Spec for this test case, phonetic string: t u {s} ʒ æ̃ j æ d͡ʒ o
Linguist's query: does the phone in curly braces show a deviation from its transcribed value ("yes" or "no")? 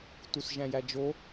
no